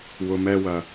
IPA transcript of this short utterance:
w ʊ˧ m ɛ˦ w ɐ˧

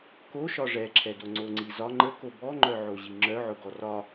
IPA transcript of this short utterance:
k o ʃ ɒ ʐ ɛ ǁʰ ɛ d o ŋ͡ǀ o ŋ͡ǀ i z ɒ ŋ͡ǃ ə k o b ɔ ŋ͡ǃ œ ʕ o ʑ i ŋ͡ǁ œ ʕ ʊ ɡ ɔ r ɒ

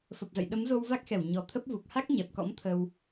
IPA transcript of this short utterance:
f ə˨˩ p̚ z ə̰˧˨ j ɗ ə˨˦ m z o˧ w v a˦˥ k̚ x ɛ˧˩ w ɲ ɔ˨˩ t̪ʰ ə˦˥ p̚ v u˨˩ k̚ h a˦˥ k̚ ɲ ɛ˨˩ p̚ k ɔ̰˧˥ m t̪ʰ ə˧ w

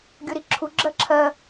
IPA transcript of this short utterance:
ɡʲ o ɾ i ǁʰ u ɡ͡ǁ ɜ ǁʰ ɜ

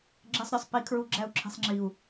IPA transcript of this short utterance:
ɡ͡ǁ e˧ sˤ ɾʲ ɒ˨ sˤ p i˨˦ kʰ ɹ u˧ ɡ͡ǁ æ˧ u̯ ǁʰ i̤˨ sˤ ŋ͡ǁ i˨ u̯

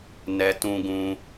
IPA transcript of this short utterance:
n ɛ˧ t ũ˧ ɡ ũ˧

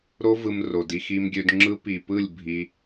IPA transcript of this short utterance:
ɾ o˦ v ɯ˧ m r o˨ d i˧ x i˧ m ɡʲ ø˧ d ŋ͡ǁ ɯ˦ p i˨ p ɯ˦˨ lʲ bʱ i˧

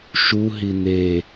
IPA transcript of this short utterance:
ʃ u ɦ i n̪ e

